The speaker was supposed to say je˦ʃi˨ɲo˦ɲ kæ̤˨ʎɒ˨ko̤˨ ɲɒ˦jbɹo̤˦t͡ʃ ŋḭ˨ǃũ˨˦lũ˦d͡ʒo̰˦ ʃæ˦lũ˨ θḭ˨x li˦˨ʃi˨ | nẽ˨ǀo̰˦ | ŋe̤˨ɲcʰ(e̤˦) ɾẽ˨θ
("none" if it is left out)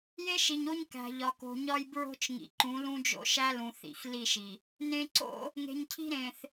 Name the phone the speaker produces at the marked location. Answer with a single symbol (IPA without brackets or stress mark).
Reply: i̤˦